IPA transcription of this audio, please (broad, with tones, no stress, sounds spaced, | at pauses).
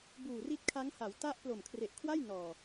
b uː˨˩ r i˦˥ t̚ kʰ a˦˥ ŋ h a˩˦ w t a˦˥ ʔ p l o˨˩ m kʰ r e˨˩ ʔ kʰ w a˥˩ j n ɔː˨˩